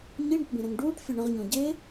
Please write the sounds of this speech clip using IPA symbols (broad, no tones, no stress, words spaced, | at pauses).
ɲiɳɘʈbẽɾɛ̃ŋ ɖuːʈfʲə ɳə̃ʁɲõ ɟe